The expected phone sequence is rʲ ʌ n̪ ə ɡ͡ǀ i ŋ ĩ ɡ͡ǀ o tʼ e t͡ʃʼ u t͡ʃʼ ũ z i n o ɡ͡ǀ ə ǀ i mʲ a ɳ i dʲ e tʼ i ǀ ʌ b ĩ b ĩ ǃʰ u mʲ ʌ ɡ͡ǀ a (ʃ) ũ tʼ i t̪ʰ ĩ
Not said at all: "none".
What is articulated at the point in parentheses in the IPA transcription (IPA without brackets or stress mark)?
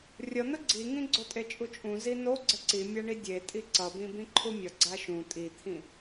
ʃ